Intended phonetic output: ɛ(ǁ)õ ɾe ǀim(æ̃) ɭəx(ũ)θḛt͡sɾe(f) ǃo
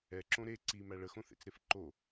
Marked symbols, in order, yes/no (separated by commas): yes, no, no, yes